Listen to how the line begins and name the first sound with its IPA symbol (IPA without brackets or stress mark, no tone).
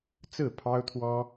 t͡s